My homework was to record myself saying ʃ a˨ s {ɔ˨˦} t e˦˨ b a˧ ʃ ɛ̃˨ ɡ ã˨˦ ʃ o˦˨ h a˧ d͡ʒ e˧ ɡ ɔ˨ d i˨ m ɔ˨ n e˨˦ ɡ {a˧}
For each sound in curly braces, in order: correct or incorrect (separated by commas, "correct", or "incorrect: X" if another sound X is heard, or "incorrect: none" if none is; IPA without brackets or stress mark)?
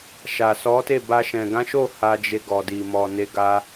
correct, correct